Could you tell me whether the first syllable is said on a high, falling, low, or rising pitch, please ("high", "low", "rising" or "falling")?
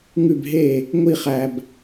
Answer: falling